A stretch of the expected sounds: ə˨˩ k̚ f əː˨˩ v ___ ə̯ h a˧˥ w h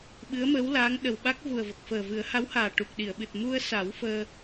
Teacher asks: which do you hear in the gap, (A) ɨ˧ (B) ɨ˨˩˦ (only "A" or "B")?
B